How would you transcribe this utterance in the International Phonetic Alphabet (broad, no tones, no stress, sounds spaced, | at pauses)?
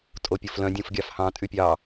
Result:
tʼ o pʲ o f l œ̃ dʲ õ f ɡʲ ɑ f h ɑ̃ tʼ y pʲ ɑ